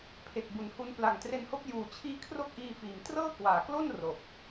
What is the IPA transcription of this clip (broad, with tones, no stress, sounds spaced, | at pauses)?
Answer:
pʰ e˨˩ k̚ b u˩˦ n h u˧ n p l a˨˩ ŋ t r e˧ n h o˦˥ k̚ j uː˨˩ t͡ɕʰ iː˦˥ kʰ r o˥˩ k̚ ʔ iː˧ f iː˩˦ m t r ɤː˥˩ k w aː˩˦ k l o˥˩ n r o˨˩ k̚